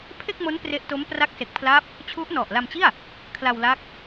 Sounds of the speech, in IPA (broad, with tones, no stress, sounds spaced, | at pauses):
pʰ e˥˩ k̚ m o˦˥ n p r e˦˥ ʔ t o˦˥ m p r a˦˥ k̚ s e˨˩ k̚ pʰ l a˦˥ p̚ | t͡ɕʰ u˦˥ ʔ n ɔ˨˩ ʔ l a˧ m t͡ɕ i˥˩ a̯ | kʰ l a˧ w l a˦˥ k̚